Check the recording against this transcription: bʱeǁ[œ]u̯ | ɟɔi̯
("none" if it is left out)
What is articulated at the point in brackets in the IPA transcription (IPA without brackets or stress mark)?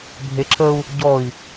ə